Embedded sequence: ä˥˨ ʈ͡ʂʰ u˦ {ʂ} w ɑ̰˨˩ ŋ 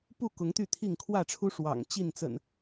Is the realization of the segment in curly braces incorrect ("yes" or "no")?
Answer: no